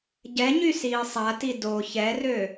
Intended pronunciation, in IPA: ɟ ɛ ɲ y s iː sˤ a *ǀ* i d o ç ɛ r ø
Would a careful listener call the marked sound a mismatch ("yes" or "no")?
yes